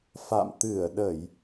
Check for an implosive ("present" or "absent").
present